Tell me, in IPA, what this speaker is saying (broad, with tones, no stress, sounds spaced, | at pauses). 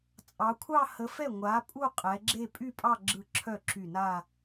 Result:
t͡sʼ ɑ˩˧ kʷʰ ɑ˥˧ h ə˨˥ f ɛ˥˩ ŋʷ a˨˥ pʼ u˥˧ qʼ ɛ˩˧ ɡ͡ǁ e˥˧ pʼ y˥˧ pʼ ɑ˥˧ ɡ͡ǁ ɯ˧˩ ǁʰ œ˥˩ ǁ y˧˩ n a˥˧